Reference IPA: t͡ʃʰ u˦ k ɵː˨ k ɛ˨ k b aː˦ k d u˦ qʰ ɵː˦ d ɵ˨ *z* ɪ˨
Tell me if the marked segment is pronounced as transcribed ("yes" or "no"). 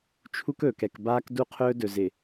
yes